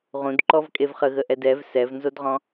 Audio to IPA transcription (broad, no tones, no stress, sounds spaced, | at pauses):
ʁ ũ d ǃ ɔ v kʼ e v χ ə ɣ ə ʔ ɛ d ɛ v s ɛ v n z o d ʁ ɔ̃